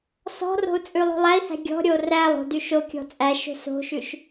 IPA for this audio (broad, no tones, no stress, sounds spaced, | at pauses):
s ɔ̤ r o̤ u̯ t͡sʼ ʉ lˠ o̤ lˠ æ i̯ h æ̤ ɡʲ ɔ̤ ɾʲ o r æ lˠ o̤ d y ʃ o kʲ ɔ̤ t͡sʼ æ ʃ o̤ s o̤ ʃ ʉ ʃ